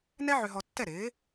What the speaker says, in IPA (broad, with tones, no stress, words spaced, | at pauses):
nɛ˥ʕø˧ɦɔ˧ tːɛ˥˩ɾɪː˩˥